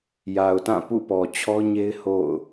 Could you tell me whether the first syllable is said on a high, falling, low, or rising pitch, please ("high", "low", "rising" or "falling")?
low